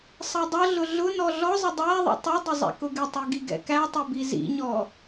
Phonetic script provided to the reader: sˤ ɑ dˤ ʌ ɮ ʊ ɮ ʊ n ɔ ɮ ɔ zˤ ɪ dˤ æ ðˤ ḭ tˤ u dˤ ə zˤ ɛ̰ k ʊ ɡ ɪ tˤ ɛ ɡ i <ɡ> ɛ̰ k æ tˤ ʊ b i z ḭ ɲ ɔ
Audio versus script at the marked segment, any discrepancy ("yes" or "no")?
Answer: no